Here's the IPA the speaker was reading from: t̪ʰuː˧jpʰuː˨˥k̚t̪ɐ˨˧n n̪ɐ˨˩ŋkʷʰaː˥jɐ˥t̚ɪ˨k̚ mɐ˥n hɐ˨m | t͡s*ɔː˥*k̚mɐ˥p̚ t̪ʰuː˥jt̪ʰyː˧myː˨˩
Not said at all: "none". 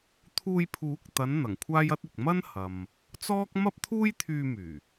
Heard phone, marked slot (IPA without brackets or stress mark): ɔː˥